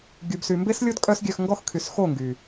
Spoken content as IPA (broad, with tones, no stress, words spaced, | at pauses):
ɡʲu˨bsy˨mbe˦slʲo˦d kʼœ˦sɡʲœ˧xŋɡɔ˦x kʰy˨sxo˦˨ŋɡy˨